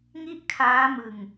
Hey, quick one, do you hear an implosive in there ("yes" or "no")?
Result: no